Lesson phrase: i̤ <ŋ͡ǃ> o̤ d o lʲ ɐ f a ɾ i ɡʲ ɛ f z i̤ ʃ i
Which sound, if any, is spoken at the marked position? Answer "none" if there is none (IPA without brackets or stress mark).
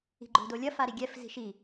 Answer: ɡ͡ǃ